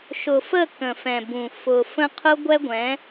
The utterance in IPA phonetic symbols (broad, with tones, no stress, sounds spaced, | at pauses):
ʃ ʊ˨ f ə˦˨ k ə̃˨ f ɛ̃˨ b ũ˨ f ʊ˨ f ə̃˦ qʰ ʊ˦ ɡʷ ɛ˦ ɡʷ ɛ̃˨˦